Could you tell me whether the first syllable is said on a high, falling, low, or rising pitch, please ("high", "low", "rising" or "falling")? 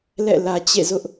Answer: falling